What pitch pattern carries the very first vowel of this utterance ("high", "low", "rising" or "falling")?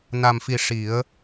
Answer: low